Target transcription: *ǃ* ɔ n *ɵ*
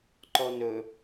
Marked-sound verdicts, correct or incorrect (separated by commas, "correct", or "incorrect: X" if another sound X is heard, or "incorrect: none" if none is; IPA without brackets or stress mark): correct, correct